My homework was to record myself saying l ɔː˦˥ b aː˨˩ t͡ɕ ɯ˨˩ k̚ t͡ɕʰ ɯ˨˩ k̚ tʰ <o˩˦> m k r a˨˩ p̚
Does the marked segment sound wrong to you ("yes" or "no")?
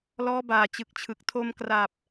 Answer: yes